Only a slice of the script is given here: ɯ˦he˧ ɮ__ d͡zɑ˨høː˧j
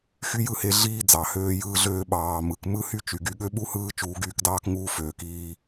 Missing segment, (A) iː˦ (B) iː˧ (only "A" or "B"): A